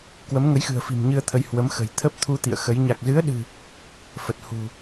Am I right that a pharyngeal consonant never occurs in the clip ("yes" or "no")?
yes